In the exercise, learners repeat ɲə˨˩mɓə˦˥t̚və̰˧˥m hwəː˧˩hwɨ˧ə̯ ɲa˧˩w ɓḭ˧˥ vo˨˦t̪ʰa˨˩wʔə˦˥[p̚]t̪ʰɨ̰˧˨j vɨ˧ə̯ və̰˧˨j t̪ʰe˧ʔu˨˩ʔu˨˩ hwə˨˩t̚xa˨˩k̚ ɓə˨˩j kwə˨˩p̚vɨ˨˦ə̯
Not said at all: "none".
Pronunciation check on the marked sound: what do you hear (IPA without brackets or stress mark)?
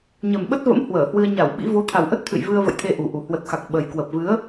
t̚